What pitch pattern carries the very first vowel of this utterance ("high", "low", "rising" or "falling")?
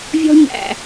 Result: high